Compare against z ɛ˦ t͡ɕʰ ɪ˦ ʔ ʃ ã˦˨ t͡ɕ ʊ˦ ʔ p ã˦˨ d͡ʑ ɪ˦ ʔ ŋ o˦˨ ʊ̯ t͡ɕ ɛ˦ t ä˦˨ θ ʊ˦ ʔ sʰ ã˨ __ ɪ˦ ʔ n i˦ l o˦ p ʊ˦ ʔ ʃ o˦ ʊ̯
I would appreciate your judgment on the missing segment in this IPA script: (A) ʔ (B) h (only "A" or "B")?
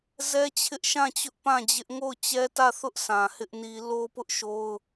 B